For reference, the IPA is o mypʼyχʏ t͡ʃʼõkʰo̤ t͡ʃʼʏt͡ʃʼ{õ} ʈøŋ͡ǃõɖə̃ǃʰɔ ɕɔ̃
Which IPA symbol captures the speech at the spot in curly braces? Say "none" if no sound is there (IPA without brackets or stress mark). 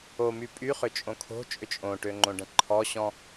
õ